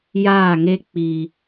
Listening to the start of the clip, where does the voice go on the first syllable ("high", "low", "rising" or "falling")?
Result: falling